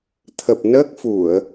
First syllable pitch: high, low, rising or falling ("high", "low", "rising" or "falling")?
low